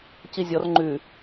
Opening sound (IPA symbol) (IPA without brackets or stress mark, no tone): c